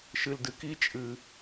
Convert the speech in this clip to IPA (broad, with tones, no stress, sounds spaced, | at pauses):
ʃ ɨ˧ l d ɨ˧ k i˥ t͡ʃʼ ɨ˧